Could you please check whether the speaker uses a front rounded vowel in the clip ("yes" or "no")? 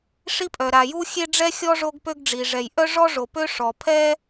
yes